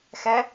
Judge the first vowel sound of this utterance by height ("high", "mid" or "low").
mid